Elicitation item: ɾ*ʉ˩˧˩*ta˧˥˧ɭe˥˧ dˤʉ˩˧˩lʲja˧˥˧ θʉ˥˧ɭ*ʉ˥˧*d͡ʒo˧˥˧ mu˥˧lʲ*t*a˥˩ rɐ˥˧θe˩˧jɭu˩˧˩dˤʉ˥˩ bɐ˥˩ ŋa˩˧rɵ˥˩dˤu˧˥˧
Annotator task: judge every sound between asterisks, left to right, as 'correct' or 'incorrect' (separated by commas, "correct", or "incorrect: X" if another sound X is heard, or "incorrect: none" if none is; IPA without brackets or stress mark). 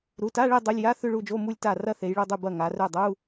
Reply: incorrect: u˩˧˩, incorrect: u˥˧, correct